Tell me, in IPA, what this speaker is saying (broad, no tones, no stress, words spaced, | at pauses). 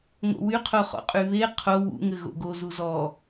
ŋo̰wy qʰoχɔ̰qʼyβe qʰo wṵŋɘ ɣo̰ɡo zuzɔ